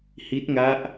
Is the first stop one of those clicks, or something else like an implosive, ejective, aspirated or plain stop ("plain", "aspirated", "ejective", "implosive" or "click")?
plain